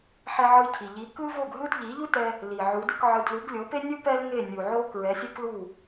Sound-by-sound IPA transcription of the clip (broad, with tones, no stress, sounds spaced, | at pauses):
ħ ɛ˧ ʕ ɯ˧ cʰ i˩ ʎ i˩˥ k ɯ˥ v o˥˩ ɡ ɦ ɯ˥ d ʎ i˩˥ ʎ u˥ t ɛ˧ | l i˩ ʕ u˩˥ d ɯ˩˥ k ʕ ɯ˧ d l u˩˥ ɡ lʲ o˩˥ p e˥ nʲ u˥ p ɛ˥ l ŋ e˥˩ nʲ u˩ ʕ o˧ k ɹ ɛ˩˥ sʲ o˥ k l u˥˩